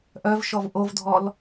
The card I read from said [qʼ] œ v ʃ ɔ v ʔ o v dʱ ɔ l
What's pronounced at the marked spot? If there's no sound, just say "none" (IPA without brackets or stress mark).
ʔ